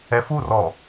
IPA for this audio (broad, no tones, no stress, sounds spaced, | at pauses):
ɛ f u r ɔ